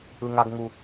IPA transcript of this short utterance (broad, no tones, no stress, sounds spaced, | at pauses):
ɯ ŋ a ɡ ŋ u